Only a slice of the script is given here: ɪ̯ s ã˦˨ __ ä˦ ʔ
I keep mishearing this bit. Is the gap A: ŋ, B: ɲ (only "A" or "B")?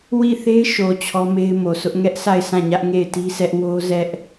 B